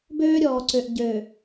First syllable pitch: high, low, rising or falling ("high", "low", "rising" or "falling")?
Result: high